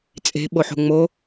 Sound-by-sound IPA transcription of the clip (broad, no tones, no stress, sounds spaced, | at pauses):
t͡sʼ e̤ ɓ o ħ o̤ ŋ͡m o